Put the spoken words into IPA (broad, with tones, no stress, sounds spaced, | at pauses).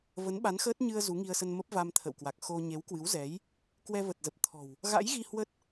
v ə˨˦ n ɓ a˨˦ n x əː˦˥ t̚ ɲ ɨ˧ ə̯ z u˨˦ ŋ i˧ ə̯ s ə˧ n m ə˦˥ p̚ v a˧ m t̪ʰ ə̰˧˨ w k w a˨˩ k̚ x o˧ ɲ e˨˦ w k w ɨ˨˦ w z ɛ˨˦ j | k w ɛ˧ v ə˨˩ t̚ z ə˨˩ p̚ t̪ʰ ɔ̤˨˩ w | ɣ a̰˧˥ j ɣ i˧ h w ə˦˥ t̚